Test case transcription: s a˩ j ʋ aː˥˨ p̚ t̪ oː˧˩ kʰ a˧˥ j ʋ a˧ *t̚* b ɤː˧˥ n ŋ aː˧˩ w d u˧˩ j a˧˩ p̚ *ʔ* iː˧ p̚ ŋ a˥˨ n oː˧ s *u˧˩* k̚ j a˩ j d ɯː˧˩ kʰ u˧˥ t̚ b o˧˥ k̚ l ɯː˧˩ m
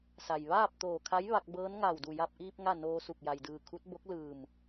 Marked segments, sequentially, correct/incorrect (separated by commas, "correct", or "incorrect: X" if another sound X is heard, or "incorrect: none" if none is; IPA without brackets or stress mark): incorrect: k̚, correct, correct